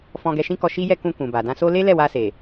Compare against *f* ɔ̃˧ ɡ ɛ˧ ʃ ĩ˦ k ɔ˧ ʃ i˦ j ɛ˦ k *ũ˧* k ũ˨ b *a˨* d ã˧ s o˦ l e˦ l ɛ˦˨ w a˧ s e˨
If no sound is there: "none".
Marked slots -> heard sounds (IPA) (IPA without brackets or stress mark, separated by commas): f, ũ˧, a˨